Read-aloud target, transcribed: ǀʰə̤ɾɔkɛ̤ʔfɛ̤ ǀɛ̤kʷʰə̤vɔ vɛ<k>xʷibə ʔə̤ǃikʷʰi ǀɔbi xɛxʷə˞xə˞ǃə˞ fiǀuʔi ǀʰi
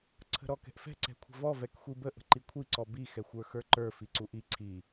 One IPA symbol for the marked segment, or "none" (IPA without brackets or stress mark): k